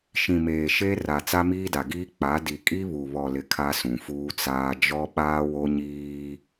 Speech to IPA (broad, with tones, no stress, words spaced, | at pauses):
ʃĩ˨ meː˨ʃe˦ ra˨ t͡sa˦miː˦da˨ɡiː˦ k͡pa˨˦di˨ kʼi˦βu˨βɔ˨lɪ˨ kʰa˦sũ˨fuː˦t͡saː˦ d͡ʒɔ˦ɓaː˦wo˦ɲiː˦